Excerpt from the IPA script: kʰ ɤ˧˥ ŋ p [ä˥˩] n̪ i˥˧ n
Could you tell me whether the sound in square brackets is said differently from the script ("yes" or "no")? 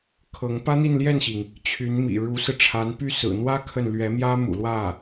yes